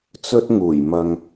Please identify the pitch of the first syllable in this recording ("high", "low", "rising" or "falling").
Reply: high